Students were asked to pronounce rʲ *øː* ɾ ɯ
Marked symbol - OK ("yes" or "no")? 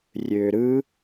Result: yes